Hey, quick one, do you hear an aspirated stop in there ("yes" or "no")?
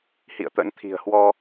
yes